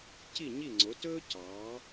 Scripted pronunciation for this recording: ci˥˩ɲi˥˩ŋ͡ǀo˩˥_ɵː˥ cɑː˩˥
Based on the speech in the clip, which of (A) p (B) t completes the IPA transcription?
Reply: B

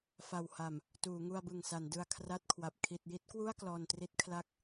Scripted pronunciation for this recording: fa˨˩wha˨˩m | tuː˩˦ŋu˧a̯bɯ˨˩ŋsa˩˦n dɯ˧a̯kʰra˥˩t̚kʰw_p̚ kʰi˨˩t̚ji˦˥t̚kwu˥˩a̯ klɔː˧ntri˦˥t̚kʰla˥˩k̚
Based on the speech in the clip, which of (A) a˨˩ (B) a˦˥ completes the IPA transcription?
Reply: A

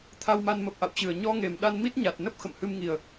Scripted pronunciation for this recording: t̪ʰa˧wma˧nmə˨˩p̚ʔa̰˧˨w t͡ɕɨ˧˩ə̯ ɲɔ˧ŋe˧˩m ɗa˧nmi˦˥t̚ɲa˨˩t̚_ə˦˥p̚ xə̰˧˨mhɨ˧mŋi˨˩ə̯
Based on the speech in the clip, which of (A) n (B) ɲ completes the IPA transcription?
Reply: A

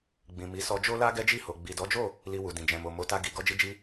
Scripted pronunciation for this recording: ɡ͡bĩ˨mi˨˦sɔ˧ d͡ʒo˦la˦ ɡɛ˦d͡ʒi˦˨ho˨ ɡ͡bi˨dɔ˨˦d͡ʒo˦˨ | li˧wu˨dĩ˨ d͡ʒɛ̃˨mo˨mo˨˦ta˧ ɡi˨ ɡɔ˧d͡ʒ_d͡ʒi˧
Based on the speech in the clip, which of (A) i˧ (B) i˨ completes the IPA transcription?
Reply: A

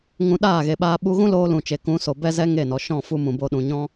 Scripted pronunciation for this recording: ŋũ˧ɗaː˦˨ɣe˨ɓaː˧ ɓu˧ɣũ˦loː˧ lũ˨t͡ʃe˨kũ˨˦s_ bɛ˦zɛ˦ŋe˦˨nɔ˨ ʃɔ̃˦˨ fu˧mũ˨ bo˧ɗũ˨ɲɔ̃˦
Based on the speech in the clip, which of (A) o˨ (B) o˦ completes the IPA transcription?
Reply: A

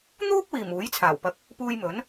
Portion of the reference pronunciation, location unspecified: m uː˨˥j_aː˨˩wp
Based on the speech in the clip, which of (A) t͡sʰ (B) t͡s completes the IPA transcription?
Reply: A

